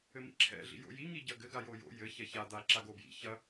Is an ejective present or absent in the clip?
absent